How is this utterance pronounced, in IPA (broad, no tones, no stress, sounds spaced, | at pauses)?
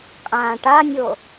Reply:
qʼ ãː ʈ a nʲ o